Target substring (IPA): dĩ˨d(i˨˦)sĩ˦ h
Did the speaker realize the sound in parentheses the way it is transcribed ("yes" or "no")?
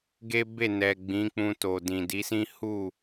yes